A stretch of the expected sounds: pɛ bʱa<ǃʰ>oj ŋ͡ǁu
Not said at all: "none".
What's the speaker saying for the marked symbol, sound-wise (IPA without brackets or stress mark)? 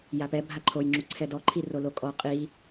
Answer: ǃʰ